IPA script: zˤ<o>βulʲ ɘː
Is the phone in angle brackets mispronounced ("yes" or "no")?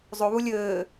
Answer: no